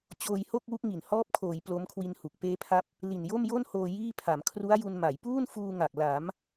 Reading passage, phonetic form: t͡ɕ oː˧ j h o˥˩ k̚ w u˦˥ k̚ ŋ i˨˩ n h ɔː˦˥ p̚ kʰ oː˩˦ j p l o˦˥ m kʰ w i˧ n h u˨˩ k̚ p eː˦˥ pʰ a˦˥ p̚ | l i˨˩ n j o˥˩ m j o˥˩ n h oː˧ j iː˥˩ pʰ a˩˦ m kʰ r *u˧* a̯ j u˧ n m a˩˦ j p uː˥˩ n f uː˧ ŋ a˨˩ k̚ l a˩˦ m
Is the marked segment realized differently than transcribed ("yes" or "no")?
yes